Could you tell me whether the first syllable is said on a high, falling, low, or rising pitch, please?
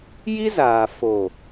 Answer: high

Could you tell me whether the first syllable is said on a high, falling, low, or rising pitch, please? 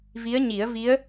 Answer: rising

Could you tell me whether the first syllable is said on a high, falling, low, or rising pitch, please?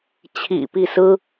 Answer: low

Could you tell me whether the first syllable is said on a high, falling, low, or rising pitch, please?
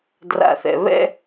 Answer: low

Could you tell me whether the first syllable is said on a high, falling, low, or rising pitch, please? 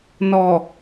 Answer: low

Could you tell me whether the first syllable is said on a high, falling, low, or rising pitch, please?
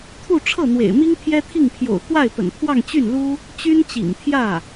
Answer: falling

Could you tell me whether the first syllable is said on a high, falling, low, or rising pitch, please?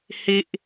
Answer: high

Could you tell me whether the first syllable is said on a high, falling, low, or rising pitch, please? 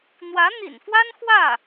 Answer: rising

